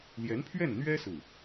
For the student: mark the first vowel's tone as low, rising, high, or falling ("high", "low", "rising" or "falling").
rising